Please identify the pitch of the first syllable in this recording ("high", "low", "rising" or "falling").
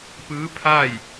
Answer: rising